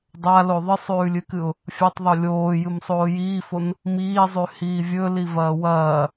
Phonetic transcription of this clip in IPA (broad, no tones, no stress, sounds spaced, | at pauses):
dˤ a l o ðˤ ɨ sˤ ʉː lʲ ɨ k ɨ ʊ̯ | fʲ a tˤ ðˤ o lʲ oː j ɨ m sˤ oː j iː f o n | m iː zˤ ʉ h iː vʲ ɵ l i v ɐː w ɐː